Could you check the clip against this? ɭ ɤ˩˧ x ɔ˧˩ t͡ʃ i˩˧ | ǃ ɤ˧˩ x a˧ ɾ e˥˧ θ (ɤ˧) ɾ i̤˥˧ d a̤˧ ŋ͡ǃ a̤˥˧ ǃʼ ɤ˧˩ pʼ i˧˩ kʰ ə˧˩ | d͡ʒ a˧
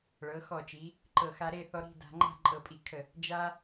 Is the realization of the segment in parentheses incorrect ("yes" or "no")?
yes